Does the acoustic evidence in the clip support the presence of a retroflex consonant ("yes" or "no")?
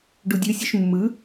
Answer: yes